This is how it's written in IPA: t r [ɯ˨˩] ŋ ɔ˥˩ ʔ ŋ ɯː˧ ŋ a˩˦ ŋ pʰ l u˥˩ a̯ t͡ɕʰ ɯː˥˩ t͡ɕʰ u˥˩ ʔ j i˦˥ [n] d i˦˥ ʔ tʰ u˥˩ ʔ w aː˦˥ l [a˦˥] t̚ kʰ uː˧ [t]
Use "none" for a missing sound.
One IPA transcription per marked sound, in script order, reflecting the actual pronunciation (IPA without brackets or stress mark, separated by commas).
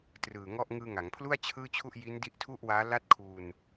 ɯː˨˩, n, a˦˥, n